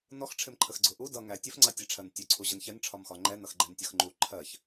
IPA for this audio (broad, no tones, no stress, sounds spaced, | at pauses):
n ɔ x ʈ͡ʂʰ ɪ m ǃʰ ə x ɡ͡ǀ ʊ ʔ u d ʌ ŋ æ tʲ ə f ŋ͡ǀ ɑ tʲ ɛ ʈ͡ʂʰ ɜ n tʲ ʊ ǀʰ u ʑ ə n ç ɛ n ʈ͡ʂʰ ɒ m x ɒ ŋ͡ǃ ɛ n ʌ x ɡ͡ǃ ɛ n tʲ ʌ x ŋ͡ǃ u ǃʰ ɜ ç